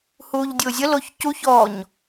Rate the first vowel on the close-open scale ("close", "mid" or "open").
close